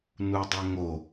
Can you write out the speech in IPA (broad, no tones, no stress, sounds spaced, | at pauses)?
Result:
n u dˤ ɛ ŋ o